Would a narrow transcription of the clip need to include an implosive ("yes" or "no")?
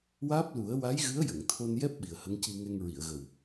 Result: yes